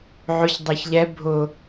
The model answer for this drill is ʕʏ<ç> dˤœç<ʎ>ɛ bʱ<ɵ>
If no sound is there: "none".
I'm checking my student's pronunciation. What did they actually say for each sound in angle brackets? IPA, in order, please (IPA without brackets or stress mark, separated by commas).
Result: ç, ʎ, ʊ